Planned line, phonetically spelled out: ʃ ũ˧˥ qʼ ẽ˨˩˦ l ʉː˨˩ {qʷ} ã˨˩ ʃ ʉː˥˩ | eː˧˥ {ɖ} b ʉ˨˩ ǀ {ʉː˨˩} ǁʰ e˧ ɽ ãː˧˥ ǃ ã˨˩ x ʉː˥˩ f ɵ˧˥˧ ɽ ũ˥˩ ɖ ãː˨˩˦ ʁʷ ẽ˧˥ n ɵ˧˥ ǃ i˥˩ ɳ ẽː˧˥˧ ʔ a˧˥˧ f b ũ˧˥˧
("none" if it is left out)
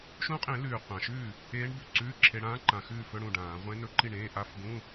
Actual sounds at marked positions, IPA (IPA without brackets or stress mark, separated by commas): qʷ, ɳ, ʉː˧˥˧